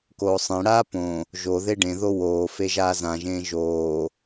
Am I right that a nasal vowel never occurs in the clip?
no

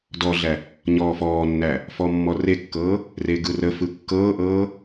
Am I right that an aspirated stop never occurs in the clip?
yes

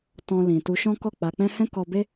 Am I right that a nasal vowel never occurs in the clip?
no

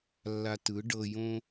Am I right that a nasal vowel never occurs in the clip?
no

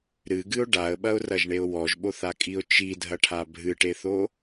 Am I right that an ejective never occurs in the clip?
no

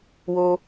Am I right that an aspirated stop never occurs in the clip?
yes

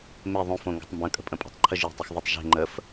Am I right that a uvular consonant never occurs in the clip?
yes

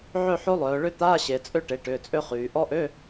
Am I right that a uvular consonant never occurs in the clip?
no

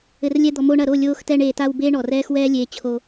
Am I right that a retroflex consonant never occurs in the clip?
no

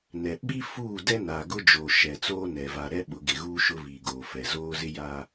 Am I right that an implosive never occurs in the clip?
no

